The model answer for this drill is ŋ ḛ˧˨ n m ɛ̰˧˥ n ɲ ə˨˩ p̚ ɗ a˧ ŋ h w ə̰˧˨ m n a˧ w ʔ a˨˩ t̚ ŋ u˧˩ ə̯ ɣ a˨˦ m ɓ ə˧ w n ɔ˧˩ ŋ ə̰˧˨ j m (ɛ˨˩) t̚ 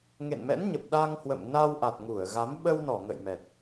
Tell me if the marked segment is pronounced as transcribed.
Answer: yes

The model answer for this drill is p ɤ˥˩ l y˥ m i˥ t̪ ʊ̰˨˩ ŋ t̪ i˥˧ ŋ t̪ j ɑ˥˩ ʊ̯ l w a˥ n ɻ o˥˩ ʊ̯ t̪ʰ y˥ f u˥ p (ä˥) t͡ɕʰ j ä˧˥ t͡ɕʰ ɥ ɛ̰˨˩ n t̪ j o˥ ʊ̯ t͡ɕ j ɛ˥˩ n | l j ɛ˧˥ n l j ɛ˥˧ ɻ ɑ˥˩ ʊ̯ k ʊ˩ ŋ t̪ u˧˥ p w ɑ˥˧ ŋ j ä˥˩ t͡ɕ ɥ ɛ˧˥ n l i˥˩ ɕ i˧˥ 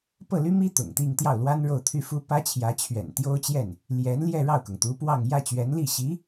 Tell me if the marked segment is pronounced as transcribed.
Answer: yes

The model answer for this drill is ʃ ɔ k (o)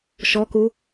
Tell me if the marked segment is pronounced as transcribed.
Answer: no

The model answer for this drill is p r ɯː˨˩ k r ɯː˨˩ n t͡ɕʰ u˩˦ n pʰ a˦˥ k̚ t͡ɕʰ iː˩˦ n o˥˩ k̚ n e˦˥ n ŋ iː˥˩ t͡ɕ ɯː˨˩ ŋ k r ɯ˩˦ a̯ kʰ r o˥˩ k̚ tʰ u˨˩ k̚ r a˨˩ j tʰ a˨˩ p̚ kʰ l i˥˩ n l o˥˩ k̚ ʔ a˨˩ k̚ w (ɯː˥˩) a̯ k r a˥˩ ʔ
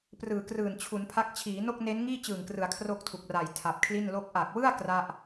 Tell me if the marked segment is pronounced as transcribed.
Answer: no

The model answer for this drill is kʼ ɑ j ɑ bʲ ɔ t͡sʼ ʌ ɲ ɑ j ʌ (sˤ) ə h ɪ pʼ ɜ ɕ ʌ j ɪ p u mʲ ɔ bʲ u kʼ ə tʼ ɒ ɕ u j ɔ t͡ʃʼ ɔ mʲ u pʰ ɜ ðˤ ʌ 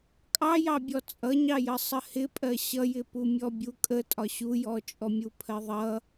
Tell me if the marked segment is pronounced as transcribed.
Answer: yes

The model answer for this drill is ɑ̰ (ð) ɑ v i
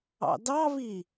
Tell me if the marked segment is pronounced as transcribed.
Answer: no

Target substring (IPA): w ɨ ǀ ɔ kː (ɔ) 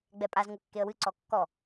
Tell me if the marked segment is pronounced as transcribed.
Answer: yes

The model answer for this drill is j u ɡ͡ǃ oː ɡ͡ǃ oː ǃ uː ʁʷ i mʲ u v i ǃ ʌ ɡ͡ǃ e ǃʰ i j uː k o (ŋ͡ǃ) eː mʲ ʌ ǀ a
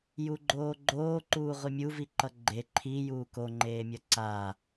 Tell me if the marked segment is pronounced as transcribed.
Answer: yes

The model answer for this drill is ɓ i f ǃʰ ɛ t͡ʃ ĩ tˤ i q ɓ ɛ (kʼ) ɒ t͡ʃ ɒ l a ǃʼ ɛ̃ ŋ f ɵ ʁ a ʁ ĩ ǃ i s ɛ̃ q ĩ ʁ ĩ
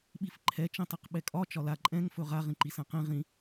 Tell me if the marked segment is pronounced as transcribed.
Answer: yes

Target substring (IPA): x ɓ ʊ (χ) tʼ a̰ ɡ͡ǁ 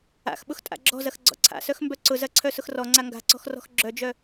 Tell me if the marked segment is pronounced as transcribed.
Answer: no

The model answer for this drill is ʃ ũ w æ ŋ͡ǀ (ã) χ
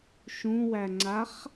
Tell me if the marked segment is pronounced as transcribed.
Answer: no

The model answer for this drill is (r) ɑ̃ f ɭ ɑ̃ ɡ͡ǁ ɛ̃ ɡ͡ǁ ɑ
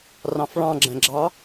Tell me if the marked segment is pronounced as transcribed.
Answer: yes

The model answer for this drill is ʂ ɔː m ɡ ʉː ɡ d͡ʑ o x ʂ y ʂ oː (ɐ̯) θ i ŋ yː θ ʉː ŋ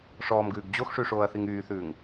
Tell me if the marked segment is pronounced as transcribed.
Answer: yes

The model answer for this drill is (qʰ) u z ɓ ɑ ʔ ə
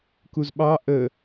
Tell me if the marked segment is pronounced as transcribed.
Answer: no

